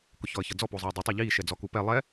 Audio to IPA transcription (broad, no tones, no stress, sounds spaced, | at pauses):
k ʊ ç ɔ ə̯ ç ʌ d͡z ɔ p o zˤ iː dˤ ʊ tˤ ɛ ʎ iː ʃ ɛ d͡z ɔ k u p ɛ lˠ ɛ